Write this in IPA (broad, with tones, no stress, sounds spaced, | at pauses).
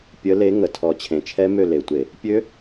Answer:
pʲ ə˨˦ l e˨˦ ŋ ə˨˩ tʰ ɔ˨˩ t͡ɕʰ ẽ˨˩ t͡ʃʰ ɛ˦˥ m ø˦˨ l e˨˩ tʷ e˧˩˧ | pʲ ø˦˥